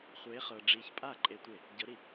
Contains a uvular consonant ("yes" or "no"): yes